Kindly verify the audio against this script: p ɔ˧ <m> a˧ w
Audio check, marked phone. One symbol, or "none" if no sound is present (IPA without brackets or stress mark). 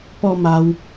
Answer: m